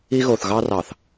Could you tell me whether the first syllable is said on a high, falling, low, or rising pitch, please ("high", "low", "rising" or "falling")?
high